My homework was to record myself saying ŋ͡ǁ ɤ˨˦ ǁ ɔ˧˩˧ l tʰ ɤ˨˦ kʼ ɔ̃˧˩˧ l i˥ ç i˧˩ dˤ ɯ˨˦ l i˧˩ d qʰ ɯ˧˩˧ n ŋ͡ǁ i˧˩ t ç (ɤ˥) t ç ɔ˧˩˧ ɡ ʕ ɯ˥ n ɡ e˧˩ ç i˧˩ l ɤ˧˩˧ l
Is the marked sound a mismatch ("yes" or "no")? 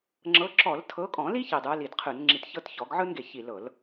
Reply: no